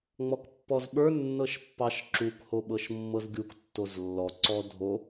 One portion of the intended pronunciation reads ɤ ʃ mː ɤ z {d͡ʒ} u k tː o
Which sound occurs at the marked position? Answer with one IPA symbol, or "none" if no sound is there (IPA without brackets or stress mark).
ɡʲ